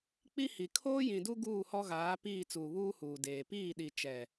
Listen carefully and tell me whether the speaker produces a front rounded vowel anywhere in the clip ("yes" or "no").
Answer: no